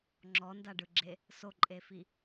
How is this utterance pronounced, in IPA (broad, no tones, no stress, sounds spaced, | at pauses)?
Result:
ŋ͡ǁ ɔ n d a ɖ ɯ ɡ͡ǁ e | s o ǃʼ e f i